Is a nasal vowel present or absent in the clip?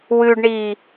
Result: absent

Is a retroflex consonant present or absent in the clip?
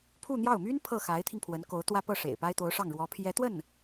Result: present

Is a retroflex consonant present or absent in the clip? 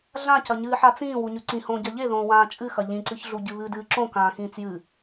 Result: absent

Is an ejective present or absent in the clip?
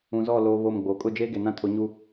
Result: present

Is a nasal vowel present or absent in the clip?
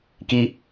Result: absent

